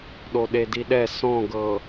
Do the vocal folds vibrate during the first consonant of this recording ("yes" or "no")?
yes